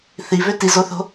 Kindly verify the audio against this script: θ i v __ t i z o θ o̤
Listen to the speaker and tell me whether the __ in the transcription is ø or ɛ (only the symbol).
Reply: ø